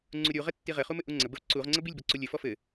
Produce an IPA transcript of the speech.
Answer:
ŋ͡ǀ u ɾʲ u ʁ ɘ tː i ʁ ɘ χ u m ɘ ʔ u ŋ͡ǀ ə b ə v ǀ u ʁ ŋ͡ǀ ə b i lʲ b ɔ ǀ u lʲ ɘ f ɔ f ɘ

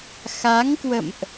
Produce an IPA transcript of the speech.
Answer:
x a˨˦ ŋ k w ə̰˧˨ m ʔ

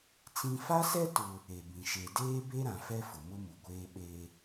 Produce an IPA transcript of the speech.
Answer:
t͡s ĩ˦ f a˦ s ɛ˦ t ʊ˦ | e˨ b ĩ˨ ʃ e˨ d eː˦ b e˦ ɾ ã˨ f ɛ˦ f ʊ˨ m ʊ˦ m u˨ ɡʷ eː˦ ɓ e˦

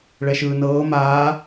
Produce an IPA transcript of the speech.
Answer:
ɭ ɛ ʃ ɯː n ɤː m aː

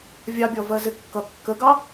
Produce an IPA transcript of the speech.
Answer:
vʲ ɑ bʲ ɔ v ɜ z ɪ kː ʌ kː ə ɡ ɑ

